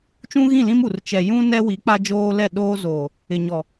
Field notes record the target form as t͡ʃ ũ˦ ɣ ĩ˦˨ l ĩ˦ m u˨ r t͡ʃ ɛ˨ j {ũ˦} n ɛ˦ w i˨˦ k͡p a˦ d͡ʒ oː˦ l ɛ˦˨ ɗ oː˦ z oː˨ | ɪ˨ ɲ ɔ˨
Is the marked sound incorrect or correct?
correct